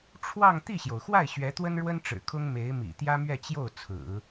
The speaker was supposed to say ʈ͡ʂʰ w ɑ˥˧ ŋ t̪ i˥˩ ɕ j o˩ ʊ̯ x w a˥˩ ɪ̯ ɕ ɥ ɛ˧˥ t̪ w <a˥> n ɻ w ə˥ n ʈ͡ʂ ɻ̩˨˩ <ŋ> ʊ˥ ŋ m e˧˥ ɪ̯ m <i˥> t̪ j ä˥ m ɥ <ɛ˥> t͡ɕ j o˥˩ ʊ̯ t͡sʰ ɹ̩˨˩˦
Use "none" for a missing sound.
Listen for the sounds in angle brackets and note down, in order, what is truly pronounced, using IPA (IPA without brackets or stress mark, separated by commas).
ə˥, kʰ, ḭ˨˩, ɛ˥˧